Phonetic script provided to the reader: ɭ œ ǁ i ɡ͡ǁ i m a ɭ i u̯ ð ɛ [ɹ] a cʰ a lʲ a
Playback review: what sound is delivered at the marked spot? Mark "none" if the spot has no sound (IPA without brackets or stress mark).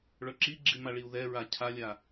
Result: ɹ